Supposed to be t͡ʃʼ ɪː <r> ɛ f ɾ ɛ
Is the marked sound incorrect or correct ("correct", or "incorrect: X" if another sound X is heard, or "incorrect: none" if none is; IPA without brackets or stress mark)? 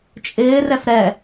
correct